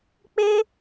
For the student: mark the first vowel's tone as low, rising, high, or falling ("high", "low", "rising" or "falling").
high